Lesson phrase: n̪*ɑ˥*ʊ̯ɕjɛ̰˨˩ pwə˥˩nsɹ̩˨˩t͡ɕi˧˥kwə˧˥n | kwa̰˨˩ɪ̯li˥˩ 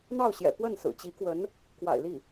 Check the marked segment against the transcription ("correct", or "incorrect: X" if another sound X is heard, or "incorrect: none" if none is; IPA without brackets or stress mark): incorrect: ɑ˥˩